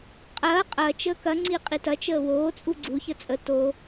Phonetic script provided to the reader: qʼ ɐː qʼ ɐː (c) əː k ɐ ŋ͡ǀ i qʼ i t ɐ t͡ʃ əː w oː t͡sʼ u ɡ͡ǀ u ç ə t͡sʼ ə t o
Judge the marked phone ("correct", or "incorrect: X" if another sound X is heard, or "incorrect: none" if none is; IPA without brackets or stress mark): incorrect: t͡ʃ